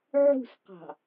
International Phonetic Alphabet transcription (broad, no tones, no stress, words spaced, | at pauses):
ʕṳsqɑ̤